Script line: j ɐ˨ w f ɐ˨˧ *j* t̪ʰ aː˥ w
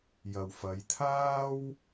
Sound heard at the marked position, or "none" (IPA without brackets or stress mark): j